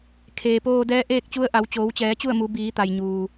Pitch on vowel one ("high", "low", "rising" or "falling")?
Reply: low